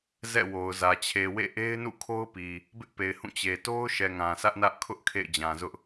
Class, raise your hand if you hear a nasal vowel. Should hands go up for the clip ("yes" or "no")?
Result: yes